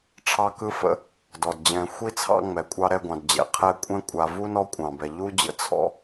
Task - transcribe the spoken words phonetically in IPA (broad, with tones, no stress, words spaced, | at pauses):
ʈ͡ʂʰɑ˥kɯ˥fə̰˦ | dɔ˩dd͡ʑɛ̃˨ xʷi˥t͡sʰɑ̰˦ ŋ͡mɛ˩kʷʼɑ˦ ɾɛ˦ɡʷɑ̃˨dd͡ʑɛ̰˩ qʰɛ˦ kʷʼɛ̃˦kʷʼa˨vu˥nɔ˦ kʷʼɑ̃˩bɛ˩ ʎu˥ d͡ʑə̰˦ t͡sʰɔ̰˥